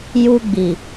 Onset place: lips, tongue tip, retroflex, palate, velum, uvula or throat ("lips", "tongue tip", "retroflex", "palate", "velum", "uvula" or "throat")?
palate